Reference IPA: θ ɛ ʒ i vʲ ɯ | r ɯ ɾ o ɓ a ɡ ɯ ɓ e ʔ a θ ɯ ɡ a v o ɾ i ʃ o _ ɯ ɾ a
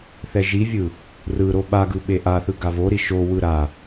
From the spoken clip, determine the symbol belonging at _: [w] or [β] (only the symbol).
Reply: w